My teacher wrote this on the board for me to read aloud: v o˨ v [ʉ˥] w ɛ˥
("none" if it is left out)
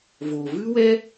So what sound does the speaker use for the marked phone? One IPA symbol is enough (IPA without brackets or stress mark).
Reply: ʉ˥